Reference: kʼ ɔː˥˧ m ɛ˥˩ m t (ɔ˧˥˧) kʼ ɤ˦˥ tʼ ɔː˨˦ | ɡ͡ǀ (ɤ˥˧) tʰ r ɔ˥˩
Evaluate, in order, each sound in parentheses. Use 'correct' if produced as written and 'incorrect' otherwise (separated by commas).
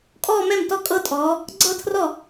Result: incorrect, correct